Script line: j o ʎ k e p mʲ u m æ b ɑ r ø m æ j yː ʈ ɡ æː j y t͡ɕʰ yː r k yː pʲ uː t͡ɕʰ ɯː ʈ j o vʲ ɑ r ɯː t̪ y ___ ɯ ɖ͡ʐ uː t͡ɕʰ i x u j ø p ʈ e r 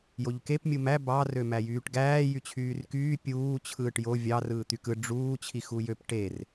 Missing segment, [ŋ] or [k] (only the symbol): k